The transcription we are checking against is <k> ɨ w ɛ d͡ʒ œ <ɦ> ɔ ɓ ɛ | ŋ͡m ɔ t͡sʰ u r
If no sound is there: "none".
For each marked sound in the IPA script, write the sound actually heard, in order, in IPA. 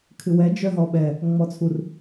kʰ, ɦ

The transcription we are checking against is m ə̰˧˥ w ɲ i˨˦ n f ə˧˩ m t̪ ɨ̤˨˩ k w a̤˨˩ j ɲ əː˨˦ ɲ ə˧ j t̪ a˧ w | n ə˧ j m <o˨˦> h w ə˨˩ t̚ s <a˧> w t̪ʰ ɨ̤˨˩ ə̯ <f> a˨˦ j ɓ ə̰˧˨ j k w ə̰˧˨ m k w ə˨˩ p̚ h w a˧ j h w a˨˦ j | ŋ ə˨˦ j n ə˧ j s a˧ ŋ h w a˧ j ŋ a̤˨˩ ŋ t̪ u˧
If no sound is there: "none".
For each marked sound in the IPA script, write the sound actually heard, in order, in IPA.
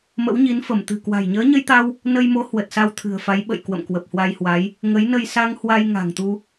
o˨˦, a˧, f

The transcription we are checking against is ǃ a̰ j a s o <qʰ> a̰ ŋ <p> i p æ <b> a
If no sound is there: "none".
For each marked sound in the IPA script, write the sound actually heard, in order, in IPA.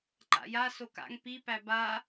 k, p, b

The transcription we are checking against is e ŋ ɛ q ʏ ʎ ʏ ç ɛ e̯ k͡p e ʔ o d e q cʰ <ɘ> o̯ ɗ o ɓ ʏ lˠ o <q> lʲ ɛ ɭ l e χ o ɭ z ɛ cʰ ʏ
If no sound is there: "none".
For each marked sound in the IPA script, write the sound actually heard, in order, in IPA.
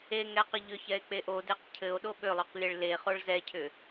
ɘ, q

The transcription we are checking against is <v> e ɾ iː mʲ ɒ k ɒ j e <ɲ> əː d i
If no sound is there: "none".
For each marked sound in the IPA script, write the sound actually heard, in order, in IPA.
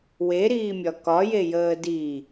w, j

